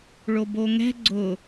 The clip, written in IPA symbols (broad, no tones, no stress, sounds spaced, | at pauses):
ɭ o b o ŋ ɛ̤ ɡ͡ǀ ʊ